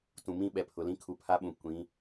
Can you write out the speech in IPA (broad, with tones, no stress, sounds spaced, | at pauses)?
t ũ˨ m ĩ˦ ɓ ɛ˨ pʰ ʊ˨ l ĩ˦ kʰ u˨ pʰ a˦ ɓ ũ˨ kʷ ĩ˨˦